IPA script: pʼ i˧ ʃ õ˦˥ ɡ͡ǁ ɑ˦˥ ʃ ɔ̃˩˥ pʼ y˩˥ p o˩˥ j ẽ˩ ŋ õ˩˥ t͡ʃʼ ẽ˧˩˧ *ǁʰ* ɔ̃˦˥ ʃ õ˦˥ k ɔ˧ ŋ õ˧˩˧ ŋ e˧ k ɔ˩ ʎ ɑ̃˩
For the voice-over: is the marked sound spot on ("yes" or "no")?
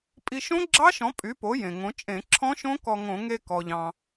yes